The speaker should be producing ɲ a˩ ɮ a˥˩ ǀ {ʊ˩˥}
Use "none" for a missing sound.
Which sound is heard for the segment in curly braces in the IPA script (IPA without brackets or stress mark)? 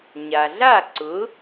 ʊ˩˥